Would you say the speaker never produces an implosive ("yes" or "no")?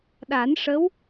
no